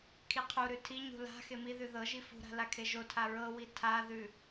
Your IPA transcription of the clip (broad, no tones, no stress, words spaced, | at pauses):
kʰiqʰuɾʉ tʰiɲṳ la̤ xemiðʉ ðɤʒi fṳɾa̤ lakʰeʒotʰa ɹɤwi tʰaðʉ